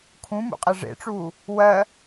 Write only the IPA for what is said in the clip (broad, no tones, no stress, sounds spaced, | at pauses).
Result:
kʰ ũ m ṵ qʼ e ʐ ḛ ʈ͡ʂ uː | w ɜ